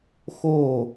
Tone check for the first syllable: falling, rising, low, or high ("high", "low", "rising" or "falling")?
falling